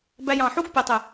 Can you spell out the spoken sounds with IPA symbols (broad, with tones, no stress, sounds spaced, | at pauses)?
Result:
b æ˧ j ɑ̃˨ ħ u˦ ɡ pʲ o˨ tˤ y˨